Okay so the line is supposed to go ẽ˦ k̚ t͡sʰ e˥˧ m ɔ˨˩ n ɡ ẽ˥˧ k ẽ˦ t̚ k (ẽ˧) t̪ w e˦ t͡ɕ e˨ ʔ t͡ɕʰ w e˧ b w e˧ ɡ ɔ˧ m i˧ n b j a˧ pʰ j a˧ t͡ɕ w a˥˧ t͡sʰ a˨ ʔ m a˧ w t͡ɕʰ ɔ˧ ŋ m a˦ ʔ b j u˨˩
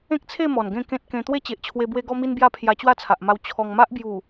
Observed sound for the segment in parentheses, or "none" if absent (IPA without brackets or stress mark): ẽ˧